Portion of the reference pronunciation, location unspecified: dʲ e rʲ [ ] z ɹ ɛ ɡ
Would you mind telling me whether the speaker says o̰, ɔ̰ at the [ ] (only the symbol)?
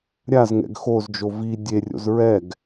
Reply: o̰